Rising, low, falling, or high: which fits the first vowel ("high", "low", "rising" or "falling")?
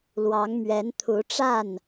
rising